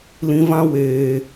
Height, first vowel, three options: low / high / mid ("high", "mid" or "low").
high